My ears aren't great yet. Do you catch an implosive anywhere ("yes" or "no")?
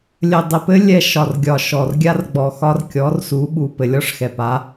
yes